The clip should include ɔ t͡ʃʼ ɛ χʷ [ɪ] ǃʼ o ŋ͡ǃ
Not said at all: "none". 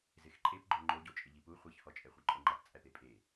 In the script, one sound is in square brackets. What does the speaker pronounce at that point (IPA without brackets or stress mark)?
i